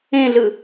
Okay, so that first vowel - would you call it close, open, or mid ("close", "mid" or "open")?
mid